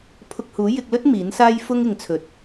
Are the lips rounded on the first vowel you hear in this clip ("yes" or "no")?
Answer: yes